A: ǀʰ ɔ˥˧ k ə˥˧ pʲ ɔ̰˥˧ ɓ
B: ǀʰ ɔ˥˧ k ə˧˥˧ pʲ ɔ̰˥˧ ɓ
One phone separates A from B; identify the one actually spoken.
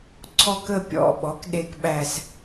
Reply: A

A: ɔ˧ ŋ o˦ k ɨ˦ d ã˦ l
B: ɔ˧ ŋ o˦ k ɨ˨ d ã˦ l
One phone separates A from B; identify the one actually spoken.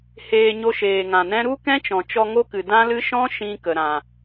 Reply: B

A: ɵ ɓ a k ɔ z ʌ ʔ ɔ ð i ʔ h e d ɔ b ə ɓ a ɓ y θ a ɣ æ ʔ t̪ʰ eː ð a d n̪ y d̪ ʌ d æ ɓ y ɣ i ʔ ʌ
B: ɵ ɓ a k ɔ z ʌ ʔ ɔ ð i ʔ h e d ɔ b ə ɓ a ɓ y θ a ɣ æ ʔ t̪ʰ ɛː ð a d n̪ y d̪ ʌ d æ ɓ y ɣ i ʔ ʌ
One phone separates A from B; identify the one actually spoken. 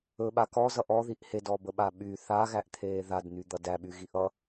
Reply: A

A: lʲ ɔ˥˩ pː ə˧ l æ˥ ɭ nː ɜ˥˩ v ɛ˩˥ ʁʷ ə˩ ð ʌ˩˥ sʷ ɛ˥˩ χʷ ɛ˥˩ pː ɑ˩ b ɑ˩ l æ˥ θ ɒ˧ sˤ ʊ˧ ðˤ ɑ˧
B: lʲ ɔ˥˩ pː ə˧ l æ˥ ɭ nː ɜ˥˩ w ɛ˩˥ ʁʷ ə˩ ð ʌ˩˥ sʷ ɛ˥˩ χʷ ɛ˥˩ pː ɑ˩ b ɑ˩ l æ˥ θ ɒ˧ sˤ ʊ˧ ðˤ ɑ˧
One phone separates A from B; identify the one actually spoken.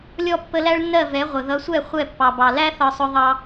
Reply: A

